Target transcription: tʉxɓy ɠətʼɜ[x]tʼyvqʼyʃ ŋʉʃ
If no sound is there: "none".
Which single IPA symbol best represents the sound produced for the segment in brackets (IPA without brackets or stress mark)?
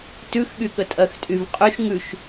x